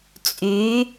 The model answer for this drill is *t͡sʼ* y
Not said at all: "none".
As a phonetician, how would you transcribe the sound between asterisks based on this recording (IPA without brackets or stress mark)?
t͡sʼ